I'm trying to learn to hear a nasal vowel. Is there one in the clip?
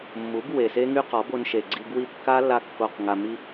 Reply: no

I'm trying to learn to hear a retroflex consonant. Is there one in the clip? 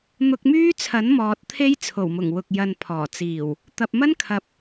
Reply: no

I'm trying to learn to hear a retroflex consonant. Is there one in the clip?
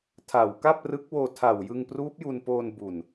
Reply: no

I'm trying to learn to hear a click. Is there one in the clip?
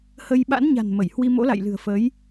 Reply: no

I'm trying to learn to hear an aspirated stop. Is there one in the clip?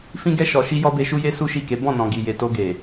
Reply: no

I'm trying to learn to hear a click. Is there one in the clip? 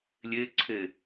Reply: yes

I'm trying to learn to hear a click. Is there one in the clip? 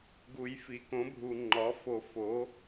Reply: yes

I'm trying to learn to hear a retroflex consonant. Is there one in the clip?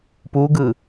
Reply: no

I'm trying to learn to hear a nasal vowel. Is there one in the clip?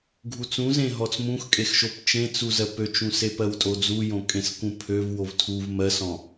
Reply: yes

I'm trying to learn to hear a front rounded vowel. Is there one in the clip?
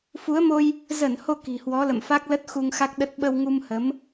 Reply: no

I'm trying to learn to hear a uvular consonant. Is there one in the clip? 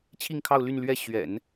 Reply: no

